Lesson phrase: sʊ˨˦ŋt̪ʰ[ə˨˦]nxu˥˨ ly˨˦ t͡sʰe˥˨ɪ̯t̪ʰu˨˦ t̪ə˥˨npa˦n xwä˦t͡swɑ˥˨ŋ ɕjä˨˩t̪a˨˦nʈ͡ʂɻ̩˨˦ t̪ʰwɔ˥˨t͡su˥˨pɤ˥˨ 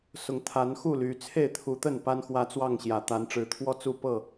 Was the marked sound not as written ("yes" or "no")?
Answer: yes